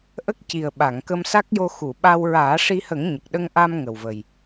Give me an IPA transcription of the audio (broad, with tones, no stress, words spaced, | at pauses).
ʔə˦˥k̚ci˨˩ə̯ ɓa˨˩˨ŋkə˧msa˦˥k̚jo˧ xu˨˩˨ɓa˧w ɹaː˨˩˦ʂi˧hə˨˩˦ŋ ɲə˨˩k̚ ɗə˧ŋʔa˧m ŋə˨˩wvə˨˩j